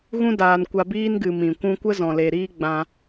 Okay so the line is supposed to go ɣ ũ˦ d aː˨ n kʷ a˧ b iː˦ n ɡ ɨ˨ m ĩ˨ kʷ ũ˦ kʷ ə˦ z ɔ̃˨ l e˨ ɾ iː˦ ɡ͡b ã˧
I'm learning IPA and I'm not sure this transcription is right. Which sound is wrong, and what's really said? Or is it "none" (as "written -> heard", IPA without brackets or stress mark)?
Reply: none